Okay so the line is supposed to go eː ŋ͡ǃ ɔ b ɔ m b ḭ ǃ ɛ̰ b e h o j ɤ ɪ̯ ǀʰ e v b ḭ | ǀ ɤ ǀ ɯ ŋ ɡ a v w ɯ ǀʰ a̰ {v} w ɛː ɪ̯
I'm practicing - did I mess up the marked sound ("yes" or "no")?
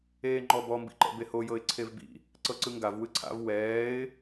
no